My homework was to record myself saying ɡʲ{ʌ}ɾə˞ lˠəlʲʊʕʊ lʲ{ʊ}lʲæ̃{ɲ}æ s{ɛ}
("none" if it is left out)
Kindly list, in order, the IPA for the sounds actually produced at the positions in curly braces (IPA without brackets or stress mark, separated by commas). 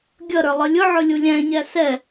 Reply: ʌ, u, ɲ, ɛ